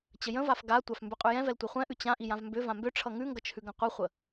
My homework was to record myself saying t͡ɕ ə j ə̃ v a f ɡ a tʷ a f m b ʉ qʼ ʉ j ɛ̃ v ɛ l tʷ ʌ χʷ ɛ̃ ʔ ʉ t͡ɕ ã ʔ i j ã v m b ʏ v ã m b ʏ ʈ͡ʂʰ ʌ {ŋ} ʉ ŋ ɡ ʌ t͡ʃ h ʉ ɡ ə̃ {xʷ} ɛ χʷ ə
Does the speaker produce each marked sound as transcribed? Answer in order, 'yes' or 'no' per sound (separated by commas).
yes, no